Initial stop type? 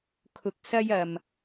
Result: aspirated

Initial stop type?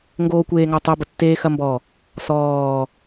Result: plain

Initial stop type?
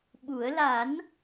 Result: implosive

